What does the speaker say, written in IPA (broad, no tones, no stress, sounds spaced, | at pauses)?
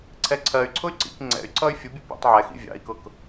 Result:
ǀʰ ɛ ǀʰ ɜ y̯ ǀʰ ʊ y̯ ǀ ḭ k ŋ͡ǀ ɛ̰ y̯ ǀ ʌ y̯ fʲ ʊ bʲ ʊ pʲ ɑ̰ tˤ ʕ ɛ x ḭ vʲ ɑ̰ i̯ k ʊ k